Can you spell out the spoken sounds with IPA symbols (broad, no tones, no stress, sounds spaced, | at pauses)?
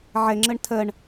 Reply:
ʕ ɛ ŋ͡ǁ ə ɳ tʰ ɜ ɳ